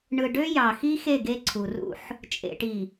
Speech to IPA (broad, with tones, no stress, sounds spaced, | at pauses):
ɳ ɯ˨ ɖ ø˦ j ɑ˨ x i˦ x e˦˨ ɡ e˦ ǀʰ u˨ r ṵ˦ ħ | t͡ʃʼ ḛ˨ ʈ i˨